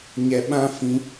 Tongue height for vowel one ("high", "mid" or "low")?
mid